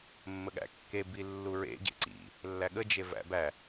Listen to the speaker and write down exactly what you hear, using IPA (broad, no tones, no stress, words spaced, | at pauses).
mːəɠæ̰ kːe bilːuɹḛ ɟḛǀḭ | lːæɠə d͡ʒevæ̰bæ